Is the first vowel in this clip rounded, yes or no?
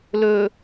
yes